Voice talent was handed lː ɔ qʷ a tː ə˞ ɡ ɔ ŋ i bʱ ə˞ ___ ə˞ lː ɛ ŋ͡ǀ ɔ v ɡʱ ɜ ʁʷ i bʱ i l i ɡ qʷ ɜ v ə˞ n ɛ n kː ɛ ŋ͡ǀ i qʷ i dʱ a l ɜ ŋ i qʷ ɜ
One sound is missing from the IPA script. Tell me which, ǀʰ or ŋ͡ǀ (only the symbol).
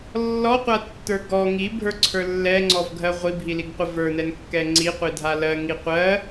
ǀʰ